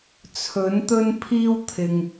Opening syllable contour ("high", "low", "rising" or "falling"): rising